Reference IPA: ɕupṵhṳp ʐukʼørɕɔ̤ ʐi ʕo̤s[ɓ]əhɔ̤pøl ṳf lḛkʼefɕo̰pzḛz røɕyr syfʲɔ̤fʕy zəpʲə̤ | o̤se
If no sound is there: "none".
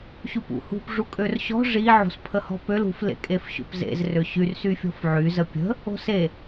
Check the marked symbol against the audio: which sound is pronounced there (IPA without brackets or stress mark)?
pʰ